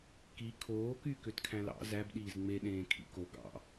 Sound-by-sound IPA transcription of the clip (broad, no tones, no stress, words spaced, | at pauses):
ki kʰoː kykøtkʰæ̃ lɑ̰ zæbɗiːz ŋ͡meɗẽː kʰḭko ɡɑ̰